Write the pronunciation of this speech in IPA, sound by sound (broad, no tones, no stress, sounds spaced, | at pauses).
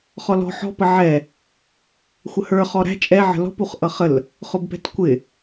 χ ɔ l ɔ̤ ħ ɔ̤ p ə ʕ ɛ | xʷ ə h ə˞ χ ɔ ɾ æ̤ t͡ʃʼ ɛ ʕ ə̤ l ɔ̤ p u χ ʔ ʌ χ ə l | χ ʊ b p ɛ̤ t kʷ ɪ